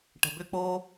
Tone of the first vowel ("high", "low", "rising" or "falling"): low